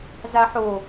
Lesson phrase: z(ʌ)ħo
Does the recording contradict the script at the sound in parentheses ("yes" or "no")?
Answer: yes